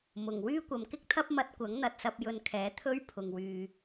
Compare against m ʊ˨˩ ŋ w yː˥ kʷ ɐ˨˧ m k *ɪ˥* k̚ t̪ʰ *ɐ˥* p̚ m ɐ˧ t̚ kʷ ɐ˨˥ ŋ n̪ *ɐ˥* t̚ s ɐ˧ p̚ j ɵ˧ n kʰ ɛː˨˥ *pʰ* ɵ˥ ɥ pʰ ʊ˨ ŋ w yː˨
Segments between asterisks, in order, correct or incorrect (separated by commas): correct, correct, incorrect, incorrect